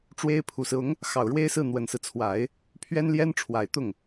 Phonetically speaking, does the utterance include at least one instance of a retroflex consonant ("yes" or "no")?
yes